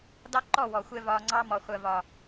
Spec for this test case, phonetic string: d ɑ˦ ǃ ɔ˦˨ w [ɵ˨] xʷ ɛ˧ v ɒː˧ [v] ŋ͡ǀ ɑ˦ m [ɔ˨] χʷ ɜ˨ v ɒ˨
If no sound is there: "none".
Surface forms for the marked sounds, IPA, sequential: ɔ˨, none, ɔ˨

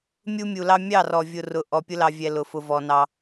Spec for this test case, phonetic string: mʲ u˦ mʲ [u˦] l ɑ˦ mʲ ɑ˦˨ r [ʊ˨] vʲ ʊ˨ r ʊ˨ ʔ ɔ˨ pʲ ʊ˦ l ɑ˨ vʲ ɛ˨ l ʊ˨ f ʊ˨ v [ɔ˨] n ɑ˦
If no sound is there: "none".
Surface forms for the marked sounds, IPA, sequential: u˨, ɔ˨, ɔ˨

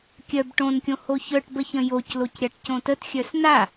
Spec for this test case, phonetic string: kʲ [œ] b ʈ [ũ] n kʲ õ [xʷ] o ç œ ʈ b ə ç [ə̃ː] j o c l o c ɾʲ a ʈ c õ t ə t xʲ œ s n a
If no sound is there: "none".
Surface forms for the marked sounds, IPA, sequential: œ, õ, h, ə̃

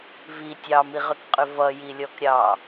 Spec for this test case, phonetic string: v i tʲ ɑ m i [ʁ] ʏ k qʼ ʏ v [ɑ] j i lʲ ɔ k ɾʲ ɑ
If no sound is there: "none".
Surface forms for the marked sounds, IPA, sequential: ʁ, ʌ

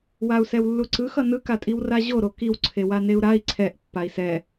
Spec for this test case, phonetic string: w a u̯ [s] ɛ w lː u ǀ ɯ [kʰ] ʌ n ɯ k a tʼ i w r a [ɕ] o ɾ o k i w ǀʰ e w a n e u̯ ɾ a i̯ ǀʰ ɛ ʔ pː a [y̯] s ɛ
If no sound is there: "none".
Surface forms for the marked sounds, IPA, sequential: s, x, ʑ, i̯

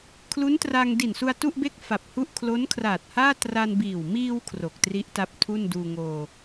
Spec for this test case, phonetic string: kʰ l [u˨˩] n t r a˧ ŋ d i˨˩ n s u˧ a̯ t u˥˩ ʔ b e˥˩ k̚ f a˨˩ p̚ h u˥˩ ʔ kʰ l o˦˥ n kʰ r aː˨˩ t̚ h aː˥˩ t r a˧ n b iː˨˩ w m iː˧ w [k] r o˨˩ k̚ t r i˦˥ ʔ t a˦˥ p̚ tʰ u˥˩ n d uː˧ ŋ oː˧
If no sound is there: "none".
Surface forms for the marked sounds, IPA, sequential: u˦˥, kʰ

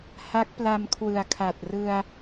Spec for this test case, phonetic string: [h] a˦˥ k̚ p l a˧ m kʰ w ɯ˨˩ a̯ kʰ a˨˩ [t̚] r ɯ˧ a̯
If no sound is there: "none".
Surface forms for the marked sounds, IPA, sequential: h, t̚

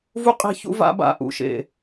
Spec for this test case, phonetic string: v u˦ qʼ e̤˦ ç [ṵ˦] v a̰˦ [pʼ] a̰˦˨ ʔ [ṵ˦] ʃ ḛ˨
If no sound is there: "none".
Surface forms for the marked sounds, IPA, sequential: ṵ˦, b, ṵ˦

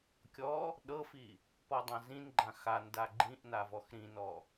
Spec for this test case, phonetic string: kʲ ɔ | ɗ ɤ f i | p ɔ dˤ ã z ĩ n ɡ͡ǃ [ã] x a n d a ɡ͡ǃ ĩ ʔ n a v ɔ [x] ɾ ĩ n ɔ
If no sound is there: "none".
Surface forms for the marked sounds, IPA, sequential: ã, x

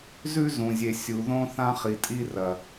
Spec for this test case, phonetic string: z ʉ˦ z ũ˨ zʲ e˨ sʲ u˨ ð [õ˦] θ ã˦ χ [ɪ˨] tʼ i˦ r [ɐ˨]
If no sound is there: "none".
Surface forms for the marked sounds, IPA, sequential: õ˦, i˨, ɐ˨

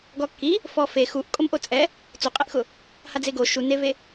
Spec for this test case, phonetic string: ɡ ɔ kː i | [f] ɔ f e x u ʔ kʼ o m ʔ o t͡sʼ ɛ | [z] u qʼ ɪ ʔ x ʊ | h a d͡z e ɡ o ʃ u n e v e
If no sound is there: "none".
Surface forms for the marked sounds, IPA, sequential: f, t͡s

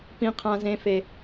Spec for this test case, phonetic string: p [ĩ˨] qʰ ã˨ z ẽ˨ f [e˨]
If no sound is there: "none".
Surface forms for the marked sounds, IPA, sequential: ĩ˨, e˨

